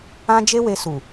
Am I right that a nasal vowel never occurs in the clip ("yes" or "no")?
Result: no